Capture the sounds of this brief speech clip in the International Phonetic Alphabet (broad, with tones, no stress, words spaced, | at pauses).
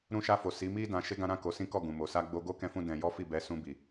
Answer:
ɾũ˧ʃa˧fo˨ si˨˦mi˦ dã˧ʃe˦ɡã˦ ɾã˦˨ ko˧ sĩ˦kɔ˦˨ ɡũ˨mo˨ sa˧ɡ͡bo˧ɡo˦kɛ̃˧ fũ˦ dɛ̃˧jɔ˦ fi˦˨bɛ˧sũ˧bi˨